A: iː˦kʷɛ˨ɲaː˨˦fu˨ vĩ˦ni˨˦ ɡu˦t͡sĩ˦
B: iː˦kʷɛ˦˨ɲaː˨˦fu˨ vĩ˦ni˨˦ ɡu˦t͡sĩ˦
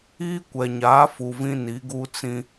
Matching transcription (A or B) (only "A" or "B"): A